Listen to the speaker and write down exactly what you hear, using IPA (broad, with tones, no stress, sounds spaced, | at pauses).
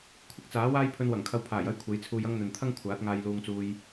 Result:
kʷʰ ɪ˥ k̚ t͡s aː˨˥ w aː˥ j pʰ ɵ˧ n w ɐ˨˩ ŋ kʰ ɐ˧ w pʰ aː˨˩ j ɐ˥ j kʷʰ e˨˥ j t͡sʰ uː˧ j ɐ˥ ŋ n̪ ɵ˨ n t̪ʰ ɐ˥ ŋ kʷʰ aː˨˥ t̚ ŋ aː˧ j l uː˧ ŋ t͡s uː˧ j